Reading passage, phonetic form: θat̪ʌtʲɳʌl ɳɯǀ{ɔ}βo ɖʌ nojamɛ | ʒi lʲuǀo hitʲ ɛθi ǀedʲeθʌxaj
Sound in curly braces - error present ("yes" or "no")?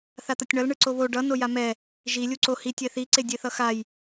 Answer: yes